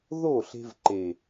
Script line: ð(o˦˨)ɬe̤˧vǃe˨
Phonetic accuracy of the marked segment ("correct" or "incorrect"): correct